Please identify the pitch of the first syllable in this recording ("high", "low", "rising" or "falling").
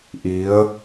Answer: rising